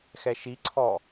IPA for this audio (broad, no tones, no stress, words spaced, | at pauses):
xɛʃiǀʰɔː